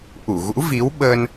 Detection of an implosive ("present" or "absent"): present